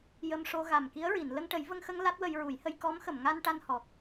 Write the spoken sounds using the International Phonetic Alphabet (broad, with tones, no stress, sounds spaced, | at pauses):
j ə˧ m ʂ o˧ ɣ a˨˩ m k i˧˥ ə̯ ɹ i˨˩˨ n l ə˧ ŋ ʈ ə˨˩˦ j v ə˧ ŋ x ə˧ ŋ l a˦˥ t̚ w ə˧ j ɹ u˨˩˦ j h ə˧ j k ɔ˧˥ m x ə˨˩˨ m ŋ a˧ n ʈ a˧ n h ɔ˨˩ k̚